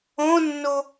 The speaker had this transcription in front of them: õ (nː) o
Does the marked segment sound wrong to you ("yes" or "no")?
no